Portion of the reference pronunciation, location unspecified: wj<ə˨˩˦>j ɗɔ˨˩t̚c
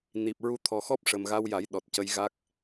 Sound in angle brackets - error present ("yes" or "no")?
yes